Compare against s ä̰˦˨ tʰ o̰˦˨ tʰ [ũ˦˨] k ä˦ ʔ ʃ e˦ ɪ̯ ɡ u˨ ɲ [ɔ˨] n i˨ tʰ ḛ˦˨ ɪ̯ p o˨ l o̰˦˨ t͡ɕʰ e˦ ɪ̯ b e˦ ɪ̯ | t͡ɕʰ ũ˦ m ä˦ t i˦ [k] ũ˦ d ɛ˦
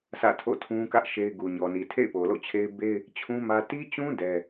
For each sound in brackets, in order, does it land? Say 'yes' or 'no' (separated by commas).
no, yes, no